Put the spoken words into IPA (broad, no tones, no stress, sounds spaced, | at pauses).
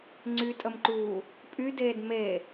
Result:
ŋ͡ǀ y tʼ ə m ǃ uː | pʼ y d eː d m e